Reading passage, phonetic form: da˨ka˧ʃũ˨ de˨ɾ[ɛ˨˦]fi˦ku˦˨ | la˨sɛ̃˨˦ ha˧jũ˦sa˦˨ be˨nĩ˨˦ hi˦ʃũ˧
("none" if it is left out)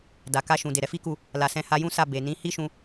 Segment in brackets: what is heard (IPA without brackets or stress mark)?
ɛ˧